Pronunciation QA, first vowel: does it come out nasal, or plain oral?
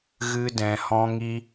oral